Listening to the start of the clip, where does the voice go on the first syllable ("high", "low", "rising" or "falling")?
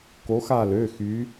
rising